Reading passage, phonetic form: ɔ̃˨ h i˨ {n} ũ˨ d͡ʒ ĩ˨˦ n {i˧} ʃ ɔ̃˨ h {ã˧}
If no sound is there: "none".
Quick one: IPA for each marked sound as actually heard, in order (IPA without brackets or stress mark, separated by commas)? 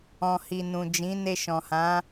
n, e˧, ã˨˦